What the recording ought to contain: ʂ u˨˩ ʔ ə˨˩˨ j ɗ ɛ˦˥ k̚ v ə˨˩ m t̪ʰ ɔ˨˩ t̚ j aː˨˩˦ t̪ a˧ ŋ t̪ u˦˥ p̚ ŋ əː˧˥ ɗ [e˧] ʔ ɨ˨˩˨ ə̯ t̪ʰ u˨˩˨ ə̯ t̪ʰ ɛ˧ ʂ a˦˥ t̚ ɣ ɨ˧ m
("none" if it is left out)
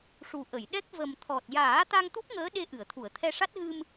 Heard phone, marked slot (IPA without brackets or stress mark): e˧